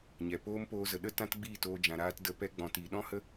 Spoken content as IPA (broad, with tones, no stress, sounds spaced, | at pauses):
ɲ ɛ˨ p oː˦ m p oː˧ z ə˨ ɗ ə˦ t ã˦ t ɡ͡b iː˦˨ t oː˧ d͡ʒ ã˨ ɾ aː˦ t d ə˧ p ɛ˦ ɡ͡b ɔ̃˨ t iː˨ ɗ ɔ̃˦ h ə˦